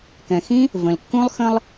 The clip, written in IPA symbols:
kɛ̃˨xĩ˦ | və̃˨lkːũ˦lˠ xə̃˧lˠ

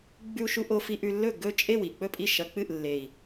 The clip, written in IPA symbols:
ɡ͡bʉ˧u̯ʃu˧ʔo˧ fi˧ʔʉ˧lːɵ˥˩ ɡɵ˥˩t͡ʃʼe˥˩w i˨˩k͡pɵ˥˩pʼi˥˩ ʃɐ˧k͡pɨ˥˩ʔlːe˨˩i̯

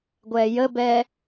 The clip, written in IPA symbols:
ɡʷɛːjəbɛː

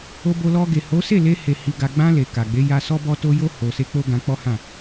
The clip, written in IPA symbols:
o˧bo˧lɔ˧ ɡe˨ho˨˦se˦˨ le˧he˨ hi˧ɡa˧ ɡ͡bã˧ le˨ka˨ɡ͡be˨˦ja˧ sɔ˦bɔ˦ to˧jo˧ ho˨se˧ k͡po˦ɡã˧k͡pɔ˦hã˦˨

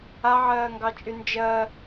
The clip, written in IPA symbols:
aʕɜːŋɡɑt͡ʃʼy nd͡ʒɜ

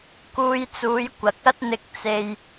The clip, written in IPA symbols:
kuː˧jt͡suː˨˧j kʷɐ˨˥k̚ɐ˥t̚n̪ɪ˧k̚ t͡se˨j

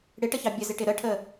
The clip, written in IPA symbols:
ɽɪʈəçɑ bʲəzɪʈɪ ɾəʈʰə

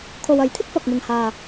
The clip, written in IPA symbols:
kʰo˨wɐ˨˥j t̪ʰɪ˥k̚fɐ˨k̚mɪ˨ŋhaː˨

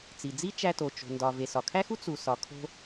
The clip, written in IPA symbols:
t͡si˩ d͡zi˥t͡ʃæ˧to˩ t͡ʃo̤˩ndɒ˩ ve˩sɒ˩kʰæ˥xu˥ t͡su˩sɒ˩kʰo̤˧

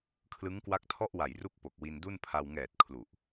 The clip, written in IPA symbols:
kʰlɯ˦˥ŋkwa˦˥k̚tʰɔ˥˩ʔwa˨˩j ru˥˩k̚po˨˩k̚ wi˧ndu˥˩npʰa˧w ŋɛː˨˩t̚ kʰlu˨˩ʔ

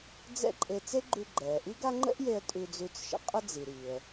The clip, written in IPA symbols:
d͡zɛ̰˥ǃʼe˧ t͡se˥ɡ͡ǃʉ˧ ɡ͡ǃɛː˩ʔi˥ɡa˥ ŋ͡ǃə̰˥ʔje˧ə̯ tʼʉ˧d͡zʉ˧t͡sʃə̰˧ qʼə˥d͡zi˩ ɾi˩ə̯

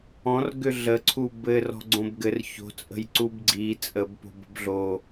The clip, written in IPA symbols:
ɔ̃r ɡʏɮəǀʰu bɘ rɔ̤ɡ͡ǀõbɡɘr ço̤t͡sʼə̤j ǀubɡ͡ǀi t͡sʼəbpo̤b ə̤bɮo

